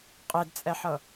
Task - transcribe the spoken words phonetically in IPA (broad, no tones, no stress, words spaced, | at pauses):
qʼedt͡sʼɛħɤ